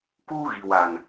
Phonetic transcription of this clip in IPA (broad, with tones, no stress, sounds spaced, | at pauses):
k uː˦ ɣ i˨ w a˨ n